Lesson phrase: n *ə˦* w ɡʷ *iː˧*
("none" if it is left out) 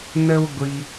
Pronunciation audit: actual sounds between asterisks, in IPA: ə˦, i˧

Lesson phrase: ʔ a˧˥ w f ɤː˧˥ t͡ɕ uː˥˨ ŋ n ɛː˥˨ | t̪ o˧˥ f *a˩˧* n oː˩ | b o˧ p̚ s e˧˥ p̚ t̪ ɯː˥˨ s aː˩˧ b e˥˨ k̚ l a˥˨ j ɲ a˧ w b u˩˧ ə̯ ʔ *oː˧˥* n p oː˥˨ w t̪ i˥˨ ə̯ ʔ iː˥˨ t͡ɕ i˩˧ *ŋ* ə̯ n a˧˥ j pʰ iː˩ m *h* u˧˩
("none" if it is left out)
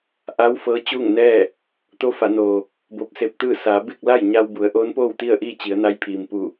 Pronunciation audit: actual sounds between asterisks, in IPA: a˩˧, oː˧˥, none, p

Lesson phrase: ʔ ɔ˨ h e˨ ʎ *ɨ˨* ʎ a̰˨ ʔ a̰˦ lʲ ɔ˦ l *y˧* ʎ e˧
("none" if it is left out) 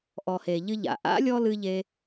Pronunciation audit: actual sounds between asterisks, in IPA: ɨ˧, ɨ˧

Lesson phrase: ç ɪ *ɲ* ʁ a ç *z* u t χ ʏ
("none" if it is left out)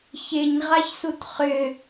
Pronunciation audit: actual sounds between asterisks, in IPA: ɲ, s

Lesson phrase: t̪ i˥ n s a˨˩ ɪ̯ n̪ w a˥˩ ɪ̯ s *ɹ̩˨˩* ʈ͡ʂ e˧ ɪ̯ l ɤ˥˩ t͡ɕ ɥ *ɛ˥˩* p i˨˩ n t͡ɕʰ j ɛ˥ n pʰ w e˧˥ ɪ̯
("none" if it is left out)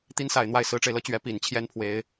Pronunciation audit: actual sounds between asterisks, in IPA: ɹ̩˧˥, ɛ˧˥

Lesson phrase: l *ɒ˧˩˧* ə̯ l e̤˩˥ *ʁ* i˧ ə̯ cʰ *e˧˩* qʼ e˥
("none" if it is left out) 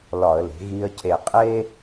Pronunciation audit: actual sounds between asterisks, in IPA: ɒ˧˩˧, ɣ, e˧˩

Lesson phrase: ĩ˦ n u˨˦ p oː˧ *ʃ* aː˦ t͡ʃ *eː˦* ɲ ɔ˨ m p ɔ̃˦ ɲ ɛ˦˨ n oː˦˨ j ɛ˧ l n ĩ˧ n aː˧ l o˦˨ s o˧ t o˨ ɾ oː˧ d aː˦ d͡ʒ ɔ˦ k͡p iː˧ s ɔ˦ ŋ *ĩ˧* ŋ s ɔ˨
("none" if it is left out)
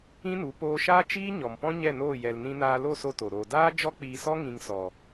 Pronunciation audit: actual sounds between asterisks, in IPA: ʃ, iː˦, ĩ˧

